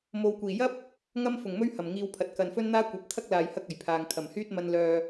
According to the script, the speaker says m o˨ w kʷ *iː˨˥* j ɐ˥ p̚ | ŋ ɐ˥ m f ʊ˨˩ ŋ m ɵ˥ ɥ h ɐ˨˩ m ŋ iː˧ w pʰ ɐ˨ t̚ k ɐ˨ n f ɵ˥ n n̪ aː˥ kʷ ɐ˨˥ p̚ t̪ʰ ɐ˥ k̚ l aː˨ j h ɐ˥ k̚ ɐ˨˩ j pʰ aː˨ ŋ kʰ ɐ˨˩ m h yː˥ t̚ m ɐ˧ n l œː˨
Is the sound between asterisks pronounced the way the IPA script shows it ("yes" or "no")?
no